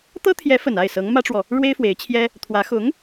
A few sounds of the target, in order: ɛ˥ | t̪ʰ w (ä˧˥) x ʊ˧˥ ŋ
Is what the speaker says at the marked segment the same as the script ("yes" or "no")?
yes